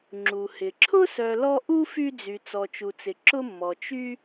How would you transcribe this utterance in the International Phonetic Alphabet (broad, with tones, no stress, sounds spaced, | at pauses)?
ŋ͡ǁ u˩ h ɪ˩ ǁʰ ʊ˥ s œ˨ l ɔ˦ ʔ u˥ f y˦ d͡z y˨ t͡s ɔ˨ t͡ʃ u˨ t͡s ɪ˨ ǁ ʊ˦ mː ɔ˨ t͡ʃ y˥